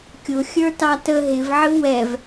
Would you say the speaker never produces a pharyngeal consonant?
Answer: no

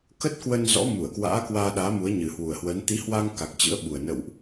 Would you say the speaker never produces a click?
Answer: yes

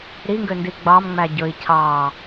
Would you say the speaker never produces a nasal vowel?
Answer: yes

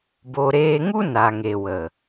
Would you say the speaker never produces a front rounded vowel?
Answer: yes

